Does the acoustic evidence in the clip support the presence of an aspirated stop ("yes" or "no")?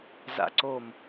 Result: no